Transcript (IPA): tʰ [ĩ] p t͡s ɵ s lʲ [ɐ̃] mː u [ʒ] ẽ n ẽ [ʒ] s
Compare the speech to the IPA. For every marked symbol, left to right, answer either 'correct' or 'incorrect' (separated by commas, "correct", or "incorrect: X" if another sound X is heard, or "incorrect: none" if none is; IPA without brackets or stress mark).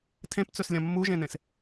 incorrect: ẽ, correct, correct, incorrect: none